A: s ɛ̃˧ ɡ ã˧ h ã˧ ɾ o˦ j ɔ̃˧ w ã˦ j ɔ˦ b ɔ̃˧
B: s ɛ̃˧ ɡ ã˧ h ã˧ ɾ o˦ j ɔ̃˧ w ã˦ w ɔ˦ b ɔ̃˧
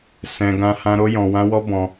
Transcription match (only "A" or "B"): B